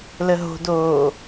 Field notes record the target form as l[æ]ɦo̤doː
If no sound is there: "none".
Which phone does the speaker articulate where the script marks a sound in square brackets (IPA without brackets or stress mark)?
ə